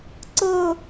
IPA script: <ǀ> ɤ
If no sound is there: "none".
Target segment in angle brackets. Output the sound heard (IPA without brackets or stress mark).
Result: ǀ